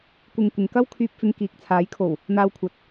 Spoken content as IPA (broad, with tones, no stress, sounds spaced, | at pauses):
kʷ ɪ˨ ŋ kʷ ɪ˨˧ ŋ k ɐ˥ w kʰ yː˧ p̚ f ɪ˧ ŋ k iː˨ k̚ t͡sʰ aː˨˥ j kʰ o˨˩ w | n̪ aː˧ w kʷʰ ɐ˨ t̚